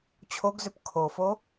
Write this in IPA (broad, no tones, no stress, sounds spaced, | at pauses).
t͡ɕʰ o ɡ z ʏ p kʰ o f o